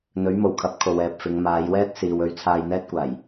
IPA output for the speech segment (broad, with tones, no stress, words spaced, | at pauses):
n̪ɵ˨˥ɥmo˨˩wkʰɐ˨˥p̚ kʰo˨wɛː˨p̚fɪ˨˧ŋ maː˨˧jwɛː˥t̚siː˨w ɵ˧ɥ t͡sʰaː˧jn̪ɛː˥t̚kʷaː˨˩j